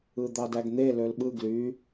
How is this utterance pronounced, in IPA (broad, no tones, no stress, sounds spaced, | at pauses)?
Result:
ɯ d̪ ɑ d æ ɡ n̪ e l ø l ɓ ɯ ɡ l y